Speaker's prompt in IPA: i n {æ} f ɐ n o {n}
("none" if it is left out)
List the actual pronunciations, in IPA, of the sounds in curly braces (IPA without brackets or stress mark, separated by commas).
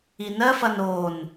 ɜ, n